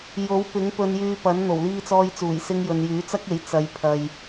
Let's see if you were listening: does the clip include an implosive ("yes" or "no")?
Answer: no